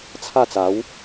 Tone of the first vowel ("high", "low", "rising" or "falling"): falling